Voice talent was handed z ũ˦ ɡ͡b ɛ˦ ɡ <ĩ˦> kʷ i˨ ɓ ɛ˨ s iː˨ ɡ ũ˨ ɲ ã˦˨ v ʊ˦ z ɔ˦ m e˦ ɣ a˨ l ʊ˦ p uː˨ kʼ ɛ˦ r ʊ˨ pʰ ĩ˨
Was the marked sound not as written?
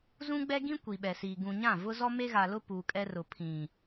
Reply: no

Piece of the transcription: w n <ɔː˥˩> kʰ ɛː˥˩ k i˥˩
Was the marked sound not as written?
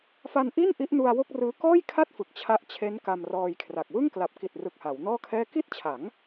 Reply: no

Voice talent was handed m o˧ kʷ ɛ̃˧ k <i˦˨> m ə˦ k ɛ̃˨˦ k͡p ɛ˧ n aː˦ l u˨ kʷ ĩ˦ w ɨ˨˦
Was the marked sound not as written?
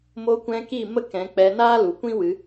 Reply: no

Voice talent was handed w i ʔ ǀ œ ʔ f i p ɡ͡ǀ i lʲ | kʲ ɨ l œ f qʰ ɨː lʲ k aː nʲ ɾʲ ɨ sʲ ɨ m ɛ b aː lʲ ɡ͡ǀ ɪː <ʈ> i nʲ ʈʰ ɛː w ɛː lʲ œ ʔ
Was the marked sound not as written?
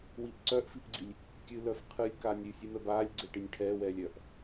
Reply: no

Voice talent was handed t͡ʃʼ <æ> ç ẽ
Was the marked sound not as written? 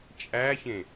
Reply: no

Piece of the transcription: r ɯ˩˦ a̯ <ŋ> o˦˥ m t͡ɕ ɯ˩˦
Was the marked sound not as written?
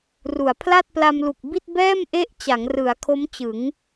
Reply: yes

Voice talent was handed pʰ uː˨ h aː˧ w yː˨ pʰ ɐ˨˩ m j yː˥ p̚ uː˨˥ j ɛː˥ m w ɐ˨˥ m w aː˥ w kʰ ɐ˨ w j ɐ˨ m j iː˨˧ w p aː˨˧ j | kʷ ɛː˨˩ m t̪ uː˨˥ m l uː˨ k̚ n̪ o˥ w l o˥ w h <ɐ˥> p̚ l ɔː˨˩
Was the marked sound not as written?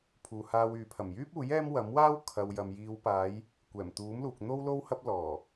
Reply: no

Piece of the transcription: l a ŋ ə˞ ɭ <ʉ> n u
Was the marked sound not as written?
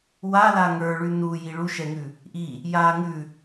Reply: no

